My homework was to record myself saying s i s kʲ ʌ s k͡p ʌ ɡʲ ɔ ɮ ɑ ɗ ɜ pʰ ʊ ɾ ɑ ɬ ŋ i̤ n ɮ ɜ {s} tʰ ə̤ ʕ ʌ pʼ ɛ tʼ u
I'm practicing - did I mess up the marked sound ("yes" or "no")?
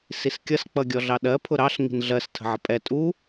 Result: no